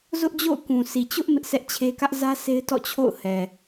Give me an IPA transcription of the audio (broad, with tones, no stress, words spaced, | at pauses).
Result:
zʊ˦ʔd͡ʑo̰˦˨ʊ̯ kũ˨si˨t͡ɕʊ˦ʔ mɪ˦ʔsɛ˦ʔt͡ɕʰe˦ kä˦ʔzä˦se˦ɪ̯ tɔ̰˦˨t͡ɕʰo̰˦˨ʊ̯hɛ˨